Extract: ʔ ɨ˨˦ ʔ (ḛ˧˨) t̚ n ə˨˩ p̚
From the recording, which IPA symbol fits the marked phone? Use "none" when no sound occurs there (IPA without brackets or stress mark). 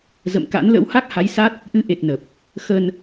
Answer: e˨˩